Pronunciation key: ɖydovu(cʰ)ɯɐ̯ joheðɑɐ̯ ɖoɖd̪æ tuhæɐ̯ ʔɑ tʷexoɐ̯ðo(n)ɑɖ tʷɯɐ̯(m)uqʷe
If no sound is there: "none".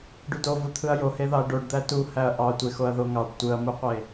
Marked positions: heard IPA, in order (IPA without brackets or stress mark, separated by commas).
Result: t̪ʰ, ŋ, m